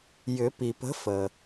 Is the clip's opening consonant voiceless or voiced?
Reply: voiced